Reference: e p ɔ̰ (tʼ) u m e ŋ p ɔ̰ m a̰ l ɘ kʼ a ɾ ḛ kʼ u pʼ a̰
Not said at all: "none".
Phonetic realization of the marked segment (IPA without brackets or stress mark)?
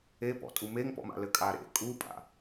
tʼ